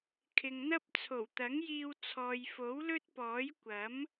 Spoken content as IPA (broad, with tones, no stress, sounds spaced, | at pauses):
kʰ ɪ˨ ŋ n̪ ɐ˥ p̚ t͡sʰ o˨˩ w t̪ ɐ˨˥ ŋ j iː˧ w t͡sʰ ɔː˨ j f o˨˥ w l ɵ˥ t̚ p ɔː˨˥ j kʷ ɐ˨˥ m